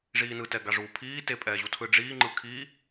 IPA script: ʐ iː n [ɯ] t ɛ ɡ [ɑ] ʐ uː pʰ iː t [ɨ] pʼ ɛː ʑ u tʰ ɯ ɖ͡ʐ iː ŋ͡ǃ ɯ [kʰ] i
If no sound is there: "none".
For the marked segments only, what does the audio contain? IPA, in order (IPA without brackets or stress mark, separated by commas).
ɯ, a, e, kʰ